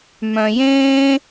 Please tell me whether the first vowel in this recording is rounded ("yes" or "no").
yes